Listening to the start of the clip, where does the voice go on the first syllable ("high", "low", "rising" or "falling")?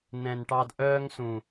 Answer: low